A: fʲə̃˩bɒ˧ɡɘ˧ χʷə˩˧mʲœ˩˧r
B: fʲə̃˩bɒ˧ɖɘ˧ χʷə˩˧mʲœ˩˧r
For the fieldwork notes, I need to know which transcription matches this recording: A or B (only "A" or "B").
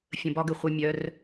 A